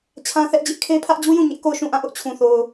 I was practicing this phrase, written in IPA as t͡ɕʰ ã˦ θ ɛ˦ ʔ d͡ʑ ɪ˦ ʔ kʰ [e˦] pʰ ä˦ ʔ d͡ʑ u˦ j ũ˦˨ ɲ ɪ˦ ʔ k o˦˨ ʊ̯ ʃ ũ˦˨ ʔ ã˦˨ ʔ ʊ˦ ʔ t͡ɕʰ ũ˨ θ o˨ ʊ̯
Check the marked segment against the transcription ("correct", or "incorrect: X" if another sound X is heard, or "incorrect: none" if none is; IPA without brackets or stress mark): correct